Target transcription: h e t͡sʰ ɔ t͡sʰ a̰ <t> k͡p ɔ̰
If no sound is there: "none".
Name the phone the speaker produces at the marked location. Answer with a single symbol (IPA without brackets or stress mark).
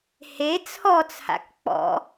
k